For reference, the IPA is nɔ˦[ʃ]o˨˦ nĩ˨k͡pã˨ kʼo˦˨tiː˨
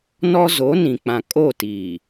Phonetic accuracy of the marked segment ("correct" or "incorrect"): incorrect